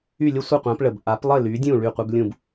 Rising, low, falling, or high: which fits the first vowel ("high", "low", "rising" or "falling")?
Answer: falling